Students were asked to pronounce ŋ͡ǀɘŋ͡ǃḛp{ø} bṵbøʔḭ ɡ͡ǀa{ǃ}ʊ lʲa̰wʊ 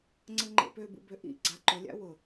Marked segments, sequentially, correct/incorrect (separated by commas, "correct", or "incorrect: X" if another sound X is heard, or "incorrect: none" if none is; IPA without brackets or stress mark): correct, correct